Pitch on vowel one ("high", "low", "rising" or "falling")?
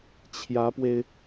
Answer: rising